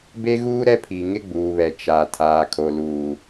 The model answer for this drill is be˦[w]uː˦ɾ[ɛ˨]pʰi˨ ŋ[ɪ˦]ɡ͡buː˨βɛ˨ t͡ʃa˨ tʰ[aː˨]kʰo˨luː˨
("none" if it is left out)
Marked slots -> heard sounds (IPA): ɣ, ɛ˦, ɪ˦, aː˨

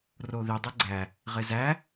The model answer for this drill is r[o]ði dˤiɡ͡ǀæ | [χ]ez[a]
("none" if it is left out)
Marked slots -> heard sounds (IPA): o, ʁ, æ

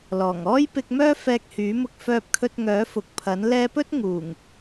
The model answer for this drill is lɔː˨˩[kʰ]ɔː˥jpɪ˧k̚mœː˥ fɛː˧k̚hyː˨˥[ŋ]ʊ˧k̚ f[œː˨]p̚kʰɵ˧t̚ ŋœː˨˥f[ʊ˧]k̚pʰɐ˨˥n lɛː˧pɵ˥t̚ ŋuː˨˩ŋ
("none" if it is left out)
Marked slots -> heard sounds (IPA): ŋ, m, œː˧, ʊ˨

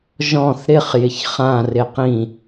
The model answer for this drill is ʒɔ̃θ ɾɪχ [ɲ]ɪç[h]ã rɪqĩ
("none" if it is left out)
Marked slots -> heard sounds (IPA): j, χ

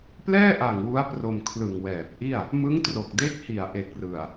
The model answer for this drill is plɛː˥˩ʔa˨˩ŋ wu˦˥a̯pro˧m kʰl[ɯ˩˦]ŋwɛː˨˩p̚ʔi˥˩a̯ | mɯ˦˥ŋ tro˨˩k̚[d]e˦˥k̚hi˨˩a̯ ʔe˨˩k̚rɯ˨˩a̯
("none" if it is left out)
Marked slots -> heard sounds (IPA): ɯ˨˩, d

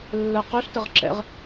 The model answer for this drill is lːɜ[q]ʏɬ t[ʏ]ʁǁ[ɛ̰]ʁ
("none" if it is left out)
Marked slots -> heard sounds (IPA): q, ə, ɛ̰

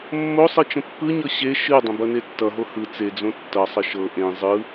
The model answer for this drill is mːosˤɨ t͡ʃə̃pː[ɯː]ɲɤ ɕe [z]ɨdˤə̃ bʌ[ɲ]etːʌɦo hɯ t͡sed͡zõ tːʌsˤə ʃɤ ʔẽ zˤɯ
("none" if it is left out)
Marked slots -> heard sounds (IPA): ɯ, ʃ, n

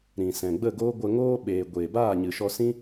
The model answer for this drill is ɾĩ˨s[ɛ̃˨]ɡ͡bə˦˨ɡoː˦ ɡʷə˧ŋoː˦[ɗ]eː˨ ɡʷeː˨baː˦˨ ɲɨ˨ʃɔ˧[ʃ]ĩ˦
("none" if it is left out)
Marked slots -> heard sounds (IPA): ɛ̃˨, ɓ, s

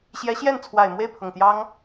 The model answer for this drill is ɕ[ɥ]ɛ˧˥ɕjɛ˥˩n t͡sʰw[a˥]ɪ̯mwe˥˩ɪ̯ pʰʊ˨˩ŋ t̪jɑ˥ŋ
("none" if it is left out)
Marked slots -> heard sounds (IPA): j, a˨˩

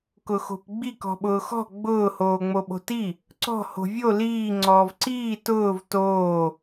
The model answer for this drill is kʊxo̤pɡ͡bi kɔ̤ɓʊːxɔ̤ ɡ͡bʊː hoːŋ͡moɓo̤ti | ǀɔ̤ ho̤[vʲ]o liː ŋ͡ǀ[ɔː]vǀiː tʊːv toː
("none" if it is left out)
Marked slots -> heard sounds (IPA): vʲ, ɔː

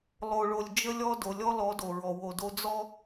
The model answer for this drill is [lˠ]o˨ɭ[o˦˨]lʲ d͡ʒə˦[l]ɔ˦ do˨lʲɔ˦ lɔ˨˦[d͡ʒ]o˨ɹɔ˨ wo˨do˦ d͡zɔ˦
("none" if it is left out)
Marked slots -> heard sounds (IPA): lˠ, o˨, lʲ, d

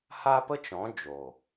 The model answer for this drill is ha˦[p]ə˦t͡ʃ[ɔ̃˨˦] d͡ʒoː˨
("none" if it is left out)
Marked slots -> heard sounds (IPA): p, ɔ̃˨˦

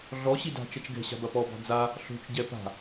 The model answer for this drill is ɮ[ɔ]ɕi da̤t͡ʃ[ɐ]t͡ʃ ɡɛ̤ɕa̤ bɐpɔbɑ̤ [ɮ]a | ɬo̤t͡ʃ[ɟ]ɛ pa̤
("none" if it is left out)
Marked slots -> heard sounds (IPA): ɔ, ɐ, d͡z, ɟ

